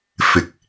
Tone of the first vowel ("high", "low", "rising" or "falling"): low